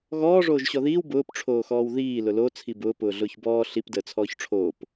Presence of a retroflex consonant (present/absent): present